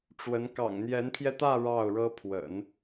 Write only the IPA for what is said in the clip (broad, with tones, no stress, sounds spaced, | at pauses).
ʈ͡ʂ w ə˧˥ n k ɑ̰˨˩ ŋ n̪ j ɛ˧˥ n pʰ j ɛ˧ t̪ ä˥˧ ɻ ɑ˥˩ ʊ̯ ɻ ɤ˥ pʰ w ə̰˨˩˦ n